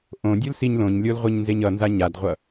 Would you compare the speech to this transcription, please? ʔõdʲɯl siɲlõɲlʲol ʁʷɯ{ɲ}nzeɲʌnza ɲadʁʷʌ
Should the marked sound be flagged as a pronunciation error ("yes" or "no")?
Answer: no